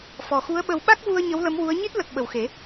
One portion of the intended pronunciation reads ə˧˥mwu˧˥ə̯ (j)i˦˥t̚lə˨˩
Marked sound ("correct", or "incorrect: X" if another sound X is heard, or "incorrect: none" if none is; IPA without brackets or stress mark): incorrect: ɲ